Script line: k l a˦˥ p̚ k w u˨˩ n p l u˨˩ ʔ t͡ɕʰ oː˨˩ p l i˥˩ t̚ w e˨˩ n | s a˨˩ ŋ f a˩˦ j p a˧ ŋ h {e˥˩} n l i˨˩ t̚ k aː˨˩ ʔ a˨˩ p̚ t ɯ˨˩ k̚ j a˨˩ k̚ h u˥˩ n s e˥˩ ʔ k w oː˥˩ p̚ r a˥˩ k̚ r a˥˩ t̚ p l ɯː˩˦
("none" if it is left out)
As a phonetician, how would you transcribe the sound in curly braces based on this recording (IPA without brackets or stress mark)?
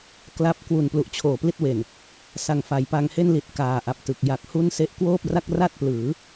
e˥˩